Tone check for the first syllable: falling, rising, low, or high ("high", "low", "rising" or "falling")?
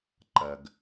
low